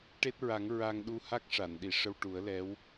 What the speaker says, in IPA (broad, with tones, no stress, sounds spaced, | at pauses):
ʈ e˦˥ t̚ ɹ a˨˩˦ ŋ ɹ a˧ ŋ ɗ u˧ h a˦˥ k̚ ʂ a˨˩˨ n ɗ i˨˩˨ ʂ ə˧ w ʈ u˨˩˦ ə̯ l ɛ˧˥ w